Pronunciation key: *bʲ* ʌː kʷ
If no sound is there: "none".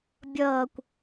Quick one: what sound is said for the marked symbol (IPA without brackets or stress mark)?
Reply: bʲ